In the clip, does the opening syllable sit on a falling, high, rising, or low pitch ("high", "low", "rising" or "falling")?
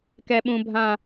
high